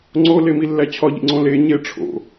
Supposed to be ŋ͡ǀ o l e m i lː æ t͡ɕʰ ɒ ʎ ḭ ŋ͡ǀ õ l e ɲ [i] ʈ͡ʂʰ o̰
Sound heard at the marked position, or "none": e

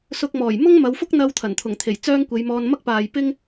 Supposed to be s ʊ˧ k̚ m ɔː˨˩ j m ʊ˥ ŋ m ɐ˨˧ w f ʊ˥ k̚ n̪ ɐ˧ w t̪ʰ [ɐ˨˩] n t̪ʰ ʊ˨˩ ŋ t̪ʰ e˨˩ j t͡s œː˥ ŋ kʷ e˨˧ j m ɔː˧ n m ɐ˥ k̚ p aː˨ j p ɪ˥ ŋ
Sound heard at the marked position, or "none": ɐ˨˩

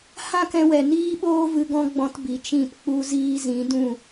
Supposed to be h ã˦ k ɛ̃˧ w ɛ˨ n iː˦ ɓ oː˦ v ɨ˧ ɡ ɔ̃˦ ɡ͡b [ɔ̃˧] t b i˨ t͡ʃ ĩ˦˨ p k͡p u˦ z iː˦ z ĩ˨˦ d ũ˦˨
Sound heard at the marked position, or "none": ɔ̃˧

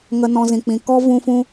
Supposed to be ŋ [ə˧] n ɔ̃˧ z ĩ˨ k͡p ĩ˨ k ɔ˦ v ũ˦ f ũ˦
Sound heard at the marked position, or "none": ə˧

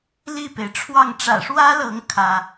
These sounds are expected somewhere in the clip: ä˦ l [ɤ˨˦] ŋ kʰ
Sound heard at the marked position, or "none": ɤ˨˦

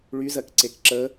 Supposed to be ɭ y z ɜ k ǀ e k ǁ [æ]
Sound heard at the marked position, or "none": ə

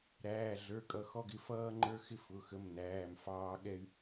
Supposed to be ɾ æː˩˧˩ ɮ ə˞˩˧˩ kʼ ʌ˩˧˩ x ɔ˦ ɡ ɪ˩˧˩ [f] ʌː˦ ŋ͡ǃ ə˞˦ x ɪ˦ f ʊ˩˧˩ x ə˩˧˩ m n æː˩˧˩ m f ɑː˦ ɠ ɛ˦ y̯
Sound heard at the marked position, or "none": f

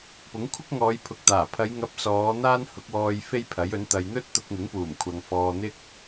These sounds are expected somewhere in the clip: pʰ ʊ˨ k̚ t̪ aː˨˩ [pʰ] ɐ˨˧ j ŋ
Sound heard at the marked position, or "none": pʰ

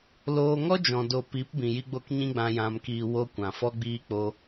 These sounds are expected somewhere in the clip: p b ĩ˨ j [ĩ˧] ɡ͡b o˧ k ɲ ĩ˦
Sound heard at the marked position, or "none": i˧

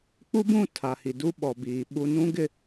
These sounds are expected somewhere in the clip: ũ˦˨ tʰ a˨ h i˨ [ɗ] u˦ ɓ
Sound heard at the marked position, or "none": d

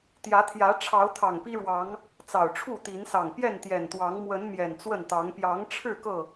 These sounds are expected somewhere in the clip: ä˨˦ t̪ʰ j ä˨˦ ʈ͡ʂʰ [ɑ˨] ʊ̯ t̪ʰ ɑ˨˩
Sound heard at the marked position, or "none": ɑ˨˦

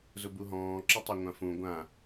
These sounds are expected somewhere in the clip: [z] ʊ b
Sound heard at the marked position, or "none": z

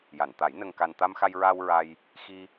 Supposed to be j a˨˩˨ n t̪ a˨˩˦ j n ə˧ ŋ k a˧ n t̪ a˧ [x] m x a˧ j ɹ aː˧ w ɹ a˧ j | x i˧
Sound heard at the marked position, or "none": none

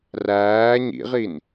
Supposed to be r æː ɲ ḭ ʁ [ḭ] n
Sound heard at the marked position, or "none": i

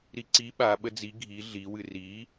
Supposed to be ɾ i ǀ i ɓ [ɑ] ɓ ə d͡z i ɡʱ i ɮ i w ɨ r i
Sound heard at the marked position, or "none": a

